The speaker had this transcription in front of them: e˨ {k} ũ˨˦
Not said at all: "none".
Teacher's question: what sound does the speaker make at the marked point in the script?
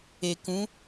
k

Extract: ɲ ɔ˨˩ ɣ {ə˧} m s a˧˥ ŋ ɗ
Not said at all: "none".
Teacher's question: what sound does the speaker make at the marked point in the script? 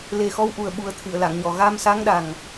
a˧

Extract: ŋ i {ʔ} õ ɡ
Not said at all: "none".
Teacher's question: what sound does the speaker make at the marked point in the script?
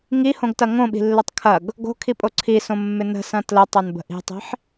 h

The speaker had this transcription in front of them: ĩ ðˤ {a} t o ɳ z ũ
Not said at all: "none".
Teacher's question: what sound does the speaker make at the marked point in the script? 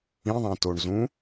ã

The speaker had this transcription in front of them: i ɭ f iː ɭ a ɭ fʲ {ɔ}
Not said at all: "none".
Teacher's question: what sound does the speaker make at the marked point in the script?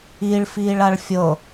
ɤ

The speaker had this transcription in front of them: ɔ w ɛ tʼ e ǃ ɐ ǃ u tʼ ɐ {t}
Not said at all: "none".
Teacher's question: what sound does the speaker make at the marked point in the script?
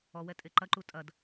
d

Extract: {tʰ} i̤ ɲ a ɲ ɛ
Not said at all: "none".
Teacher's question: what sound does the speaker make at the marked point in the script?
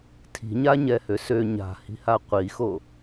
tʰ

